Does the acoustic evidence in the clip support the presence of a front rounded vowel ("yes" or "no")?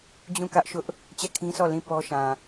no